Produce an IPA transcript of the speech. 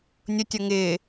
nʲʊtʲʌ ŋɪː

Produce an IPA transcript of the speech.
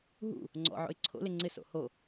ɦṵ | ŋ͡ǀɔ̰ʕo̰ɪ̯ ǀʰo̰lɪ ŋ͡ǀɪso̰ ho

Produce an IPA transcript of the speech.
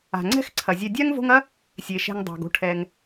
a̤˩ŋ͡ǀɛ̤˥xǀʰɐ˩ zʲɛ˨dʲa˥ŋvo̤˦ŋɐ˥ | sʲe˩ʃɛ̤˨ŋ dˤa̤˩ɡo̤˥ʈʰɛ˩ŋ

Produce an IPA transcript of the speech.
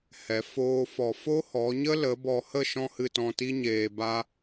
hɛ˨˦foː˦fɔ˧ fo˦hɔ˨˦ɲə˦lə˨˦ bɔ˨hə˦˨ ʃɔ̃˦hɨ˧tɔ̃˧ ti˦ɲeː˨ ba˧

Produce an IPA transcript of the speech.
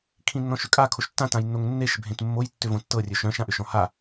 kʰĩnːɔ̃ʃʏkʼa kʰoʃtːã tãjnːoŋnːeʃ bʱẽtmːoj tːʏvõtːɤ rʲɵʃœ̃ʃ ãʔʏʃɔ̃ha

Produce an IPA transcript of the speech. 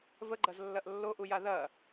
vəɡ͡ǃɐzlːɐʔ lːoʔuja ðɐ

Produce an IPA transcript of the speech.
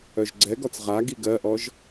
œʒɡ͡ǀɛɡɔt͡s ʁa ɡiɡɜʔɔʒ

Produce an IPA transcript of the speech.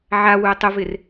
ʕawuə̯ tˤʊvɪr

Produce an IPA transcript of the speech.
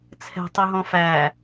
t͡sʰɛ̤tˤɵɦɔ̃ fæ

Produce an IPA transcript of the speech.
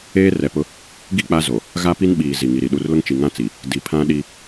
eː˦rɛ˨pʊ˦ | ɡi˦ k͡pa˦zo˨ | ɣa˦pi˦nɓiː˨ zi˨ŋi˨ɾi˨ ɗu˨rlʊ˦ŋ t͡ʃi˨ŋã˦t͡si˨ | di˨pʰã˦ ɗi˦

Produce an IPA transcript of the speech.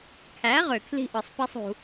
kʰæ˨˦ʁø˨kʰli̤˧ʔɯ˨sˤ pi˦sˤṳ˧

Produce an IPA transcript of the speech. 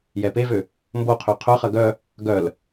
jɛpevø | mboqʰø qʰœχɐ ɡœ | ɡœl

